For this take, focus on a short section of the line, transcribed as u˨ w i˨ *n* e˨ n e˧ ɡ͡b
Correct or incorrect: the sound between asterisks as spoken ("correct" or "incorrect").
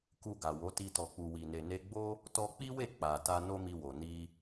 correct